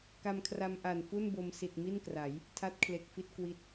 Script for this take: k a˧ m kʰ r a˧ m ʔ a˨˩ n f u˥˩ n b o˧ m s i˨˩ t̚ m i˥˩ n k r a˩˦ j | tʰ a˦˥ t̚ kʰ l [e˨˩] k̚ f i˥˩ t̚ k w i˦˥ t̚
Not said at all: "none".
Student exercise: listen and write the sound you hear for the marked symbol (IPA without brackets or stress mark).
e˨˩